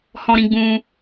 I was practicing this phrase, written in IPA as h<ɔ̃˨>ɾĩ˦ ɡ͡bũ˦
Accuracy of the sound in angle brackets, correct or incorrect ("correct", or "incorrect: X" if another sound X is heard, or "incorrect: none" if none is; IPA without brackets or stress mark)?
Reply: incorrect: ɔ̃˦